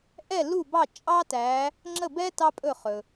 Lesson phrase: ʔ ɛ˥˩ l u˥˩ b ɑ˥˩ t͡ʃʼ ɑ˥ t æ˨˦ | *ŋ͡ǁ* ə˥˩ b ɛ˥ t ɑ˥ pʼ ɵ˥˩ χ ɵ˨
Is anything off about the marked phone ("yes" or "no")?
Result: no